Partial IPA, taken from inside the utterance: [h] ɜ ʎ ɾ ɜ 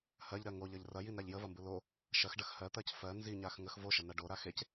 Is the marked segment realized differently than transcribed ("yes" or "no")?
no